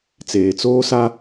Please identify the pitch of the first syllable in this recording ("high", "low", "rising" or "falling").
low